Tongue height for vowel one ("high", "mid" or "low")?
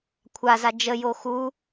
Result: low